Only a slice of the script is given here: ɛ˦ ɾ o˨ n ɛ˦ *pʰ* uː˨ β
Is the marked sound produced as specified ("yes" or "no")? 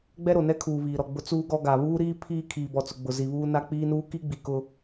no